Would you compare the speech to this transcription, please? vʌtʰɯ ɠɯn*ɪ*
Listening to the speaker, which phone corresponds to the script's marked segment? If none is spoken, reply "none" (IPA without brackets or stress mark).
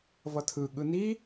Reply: i